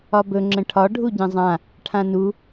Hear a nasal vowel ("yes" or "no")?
yes